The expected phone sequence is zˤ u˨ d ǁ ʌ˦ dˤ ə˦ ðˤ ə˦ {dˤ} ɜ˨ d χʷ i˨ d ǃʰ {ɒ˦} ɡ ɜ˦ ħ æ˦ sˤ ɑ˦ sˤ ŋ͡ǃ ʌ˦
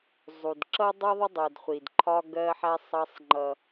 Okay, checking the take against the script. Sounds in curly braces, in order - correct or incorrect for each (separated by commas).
correct, correct